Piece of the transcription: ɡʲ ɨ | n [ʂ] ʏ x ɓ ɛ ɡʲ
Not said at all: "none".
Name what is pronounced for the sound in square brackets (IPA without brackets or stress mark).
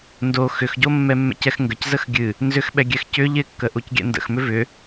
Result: z